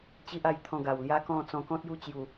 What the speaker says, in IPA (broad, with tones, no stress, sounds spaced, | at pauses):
t͡ɕ i˦ ʔ a˧ j t̪ʰ ɔ̃˧ ɡ a˨˩ w l j a˦ k ɔ̃˥˧ t͡s ɔ̃˧ k ɔ̃˦ t̚ j u˦ t͡ɕ j u˨˩